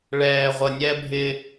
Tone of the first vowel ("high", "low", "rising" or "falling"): low